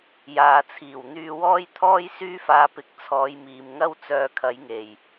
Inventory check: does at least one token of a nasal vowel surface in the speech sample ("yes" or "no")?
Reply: no